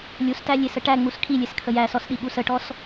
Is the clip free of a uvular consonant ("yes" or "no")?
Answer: yes